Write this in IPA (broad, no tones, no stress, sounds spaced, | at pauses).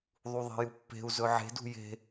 ðˤ u ðˤ e̤ j u pː e̤ u̯ z ɵ ʕ e̤ d ṳ j e̤